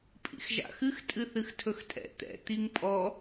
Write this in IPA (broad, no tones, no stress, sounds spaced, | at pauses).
pʼ ḭ x ʒ a̰ x ɨ x tʼ ɨ θ ɨ x tʰ ɵ x tʼ ɛ̰ t̪ ɛ̰ t̪ i ŋ pʼ ɔ